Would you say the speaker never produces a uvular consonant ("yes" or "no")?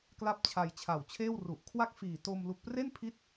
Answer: yes